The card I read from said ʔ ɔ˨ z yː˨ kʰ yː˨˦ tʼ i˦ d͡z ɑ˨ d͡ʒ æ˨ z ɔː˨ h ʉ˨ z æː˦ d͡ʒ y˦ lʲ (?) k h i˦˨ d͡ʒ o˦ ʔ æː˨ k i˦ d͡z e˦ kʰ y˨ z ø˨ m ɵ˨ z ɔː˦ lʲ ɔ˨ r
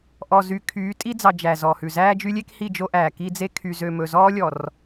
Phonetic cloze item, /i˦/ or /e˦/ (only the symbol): e˦